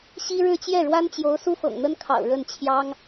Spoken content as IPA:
ɕi˥ɻɻ̩˥˧ t͡ɕjɛ˥˩ɻwa˥nt͡ɕjo˧˥ʊ̯ su˥fɤ̰˨˩ŋn̪ə˥nkʰɑ̰˨˩ʊ̯ ɻə˥˩nt͡ɕʰjɑ˥ŋ

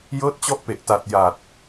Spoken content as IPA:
jɤː˦˥t̚t͡ɕɔ˦˥ʔpe˨˩ʔta˨˩t̚ ja˨˩t̚

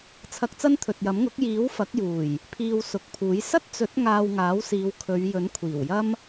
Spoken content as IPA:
t͡sʰɐ˧k̚t͡sɐ˥nt̪ʰɵ˨t̚jɐ˨˥m ŋʊ˨˥k̚jiː˨˥w fɐ˨˥k̚juː˨˩j | pʰiː˧wsʊ˨k̚pʰuː˨˥j sɐ˥t̚t͡sɵ˨˥t̚ ŋaː˧wŋaː˨˥wsiː˨˧wkʰɵ˨˧ɥ jɵ˨˥nkʷʰiː˨˩wjɐ˥m

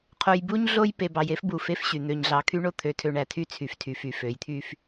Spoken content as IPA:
qʰo˨jbu˦ɲɮo˦j pe˨bɑ˨j e˦fbu˨ fe˦fɕy˨ n̪ø˨ɲɮɑ˨ kʰy˦ɳo˦t̪ʰø˨tʰø˨ ɳæ˨tʰy˦t͡sʰy˨ftʰy˨ fy˨fø˨˦jt̪ʰy˦f

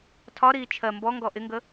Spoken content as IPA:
tʰɒɾiː t͡ʃʰɜ mbɔŋɡɔ ʔɪŋɡə

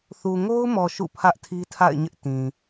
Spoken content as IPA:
θu˨ŋo˦ʊ̯mɔ˨ ʃṵ˦˨ pʰä˦ʔtʰi˦tʰa̰˦˨ɪ̯ɲɪ˦ʔ tĩ˨

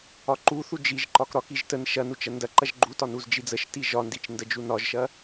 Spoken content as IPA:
ɒǃuθu d͡ʒiʒǃɒk ɾɒkiʒ tən ʃɐnut͡ʃ ɐndɐǃɐʒ ɡ͡ǃutɒ nuzd͡ʒid͡zəʃti ʒɒndit͡ʃ ndəd͡ʒunɒʒʃɐ

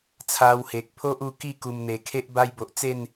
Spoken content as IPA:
t͡sʰa˧whe˨k̚pʰo˦ʔ u˧ki˥˧ku˨˩m n̪e˨˩kʰe˦ʔ ba˧jbo˨ʔt͡se˥˧n

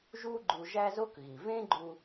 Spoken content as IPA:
ʒu˥ ɡ͡ǃu˧ ʒæ˥zo˥kɣi˩ vẽ˥ɡ͡ǃu˧

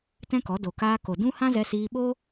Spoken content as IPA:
tɛ̃˦kɔ˨˦ do˨kaː˧ ko˨dũ˦ hã˦zɛ˧siː˧ɓo˦

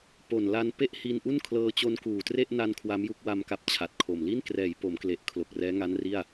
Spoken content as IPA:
po˨˩nla˧n pe˥˩ʔ hi˧nʔu˥˩nkʰlɤː˧ t͡ɕo˧nkuː˨˩tre˥˩ʔ na˧n kʰwa˦˥mju˦˥k̚ wa˧m ka˦˥p̚t͡ɕʰa˨˩t̚kʰo˨˩m li˥˩nkrɛː˩˦jpo˩˦mkle˨˩ʔ kʰlo˨˩k̚rɛː˦˥ŋa˦˥nri˥˩a̯

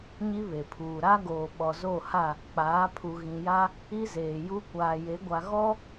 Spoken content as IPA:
ɲi˦βe˨pʰuː˨ ɾa˦ɡoː˨ ɓɔ˨zo˦˨ha˦˨ | k͡paː˨˦ pʰu˨ɣĩ˨ja˦ | i˦zeː˨ju˦ kʷaː˨je˨˦ɡʷa˨ ɣɔ˦

